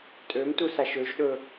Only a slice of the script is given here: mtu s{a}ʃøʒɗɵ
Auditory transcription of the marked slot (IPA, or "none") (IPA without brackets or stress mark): a